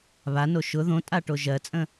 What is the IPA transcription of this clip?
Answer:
βano ʃʊ ðõtʼaʈo ʒɜt͡sʼə̃

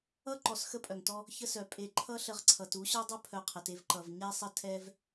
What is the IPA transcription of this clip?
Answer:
ʌ˥ ǃɔ˨sxə˦pʼœ˩ŋtɔ˦ | çə˦sœ˩pʼe˨ ǃʰʌ˦ɬə˨ʁ ǀʰʌ˩tu˥ɕœ˥dˤʊ˥ pʰœ˨qʰə˩te˦v ǃʌ˩vɲɛ˦sˤə˦ tʰɛ˥v

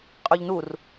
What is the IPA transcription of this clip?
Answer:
qʼøʎnur

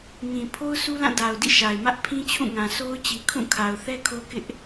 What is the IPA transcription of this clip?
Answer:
ŋĩ˨pʰo˦ʊ̯ su˦lã˦˨da˨ʊ̯dḭ˦˨ ʃa˨ɪ̯mä˦ʔ pʰĩ˦t͡ɕʰũ˦˨ ŋã˨sʰo˦ʊ̯ t͡ɕi˨kʰũ˦˨kʰa˨ʊ̯ θɛ˦kʰo˦kɪ˦ʔ

